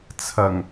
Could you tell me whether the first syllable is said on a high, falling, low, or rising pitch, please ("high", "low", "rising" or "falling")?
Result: low